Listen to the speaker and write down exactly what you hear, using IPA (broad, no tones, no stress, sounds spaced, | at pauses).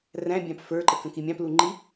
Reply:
r æ̃ bʲ ɑ̃ p f ə˞ ǃ ə k ə̃ k i mʲ ɑ̃ p l u ŋ͡ǃ i